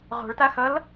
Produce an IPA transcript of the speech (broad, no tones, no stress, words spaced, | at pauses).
ʁo̤ɭta xʌl